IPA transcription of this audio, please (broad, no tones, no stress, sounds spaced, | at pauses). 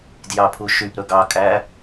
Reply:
d j ɑ pʰ u ʃ y p ɾ ɵ ɡ ɑ kʼ æ